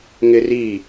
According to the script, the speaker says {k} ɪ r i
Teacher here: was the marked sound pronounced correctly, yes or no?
no